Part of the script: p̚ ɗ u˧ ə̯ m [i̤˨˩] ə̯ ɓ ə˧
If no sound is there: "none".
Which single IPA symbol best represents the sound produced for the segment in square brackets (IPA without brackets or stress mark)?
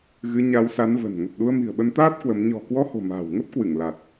i̤˨˩